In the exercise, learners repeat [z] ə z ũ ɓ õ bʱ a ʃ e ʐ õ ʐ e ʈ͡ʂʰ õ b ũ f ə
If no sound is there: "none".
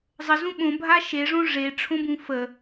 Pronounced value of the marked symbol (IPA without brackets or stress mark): zˤ